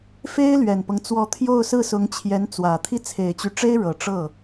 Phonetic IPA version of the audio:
f e˥ ɪ̯ l ɥ ɛ˨˩ n p ɤ˦ ŋ t͡s w ɔ˧˥ t̪ʰ j o˥˧ ʊ̯ s ɹ̩˥˩ s ʊ˧˥ ŋ t͡ɕʰ j ɛ˧˥ n t͡s w ä˨˩ t̪ʰ i˥ t͡sʰ e˨˩ ɪ̯ t͡ɕ y˧˥ ʈ͡ʂ e˥ ɪ̯ ɻ ɤ˨˩ ʈ͡ʂ ɤ˥˩

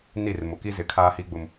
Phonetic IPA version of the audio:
n i˦˨ r m ʊ˨ k i˦ z ɪ˨ kʰ aː˦ h i˦ ɡ͡b ʊ˦ m

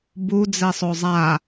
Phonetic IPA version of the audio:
b u d͡z ɛ sˤ o zˤ a

